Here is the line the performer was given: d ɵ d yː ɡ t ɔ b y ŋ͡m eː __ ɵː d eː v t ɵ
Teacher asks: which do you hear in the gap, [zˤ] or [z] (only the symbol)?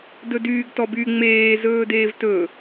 z